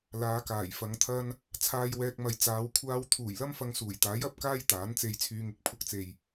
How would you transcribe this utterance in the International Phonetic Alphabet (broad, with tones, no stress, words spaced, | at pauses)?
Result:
laː˨˧kaː˨˩jfɐ˨˧ŋt̪ʰɐ˥n | t͡sʰaː˧jwɛː˧k̚mɐ˨jt͡saː˨˧w kʷʰaː˧w t̪ʰuː˨˩jlɐ˥m fɐ˧ŋsuː˨˩jt̪aː˨˥j ɐ˨˥p̚kaː˥j t̪aː˨˥nt͡se˧jt͡sʰyː˧ŋɪ˨˥k̚ pʰʊ˧k̚t͡se˨j